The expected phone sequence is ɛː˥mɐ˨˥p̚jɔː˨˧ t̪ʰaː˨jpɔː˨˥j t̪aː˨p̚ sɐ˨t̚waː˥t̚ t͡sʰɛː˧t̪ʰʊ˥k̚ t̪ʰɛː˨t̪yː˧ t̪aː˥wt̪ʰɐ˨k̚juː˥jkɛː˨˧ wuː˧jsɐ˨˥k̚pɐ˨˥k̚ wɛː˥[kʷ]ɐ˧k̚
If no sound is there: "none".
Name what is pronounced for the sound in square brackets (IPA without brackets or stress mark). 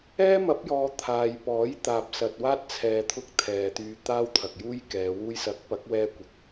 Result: kʷ